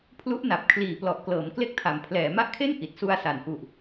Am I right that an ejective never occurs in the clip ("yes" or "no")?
yes